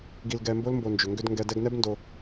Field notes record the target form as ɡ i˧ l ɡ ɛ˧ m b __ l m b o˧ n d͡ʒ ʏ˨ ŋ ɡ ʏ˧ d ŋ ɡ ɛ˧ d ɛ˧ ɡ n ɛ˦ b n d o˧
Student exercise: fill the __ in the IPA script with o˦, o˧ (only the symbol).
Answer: o˦